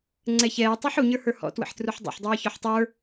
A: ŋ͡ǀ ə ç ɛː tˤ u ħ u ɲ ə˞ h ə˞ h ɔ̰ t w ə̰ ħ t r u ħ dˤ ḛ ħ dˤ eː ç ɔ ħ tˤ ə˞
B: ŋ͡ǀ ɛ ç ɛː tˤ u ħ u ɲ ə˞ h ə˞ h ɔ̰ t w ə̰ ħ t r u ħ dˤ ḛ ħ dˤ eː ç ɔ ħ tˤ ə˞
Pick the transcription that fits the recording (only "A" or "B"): B